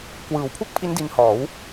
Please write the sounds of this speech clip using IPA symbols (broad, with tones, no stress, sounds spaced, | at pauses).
k w ɯː˨˩ w pʰ u˥˩ k̚ pʰ i˦˥ n d i˧ n h ɔː˩˦ w